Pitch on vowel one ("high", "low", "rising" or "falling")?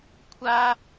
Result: high